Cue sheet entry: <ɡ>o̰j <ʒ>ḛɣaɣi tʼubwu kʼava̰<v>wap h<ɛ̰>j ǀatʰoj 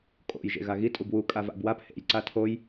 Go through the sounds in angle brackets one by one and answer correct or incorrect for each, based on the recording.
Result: incorrect, correct, incorrect, incorrect

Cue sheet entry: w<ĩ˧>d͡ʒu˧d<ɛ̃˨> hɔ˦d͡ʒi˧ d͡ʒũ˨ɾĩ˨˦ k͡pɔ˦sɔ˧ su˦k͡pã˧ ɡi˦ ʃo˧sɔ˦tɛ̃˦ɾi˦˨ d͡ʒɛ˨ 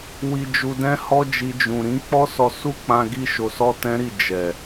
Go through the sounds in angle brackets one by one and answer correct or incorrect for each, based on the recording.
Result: incorrect, incorrect

